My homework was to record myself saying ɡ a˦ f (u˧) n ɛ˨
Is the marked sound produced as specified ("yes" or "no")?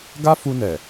yes